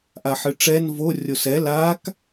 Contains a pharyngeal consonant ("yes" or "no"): yes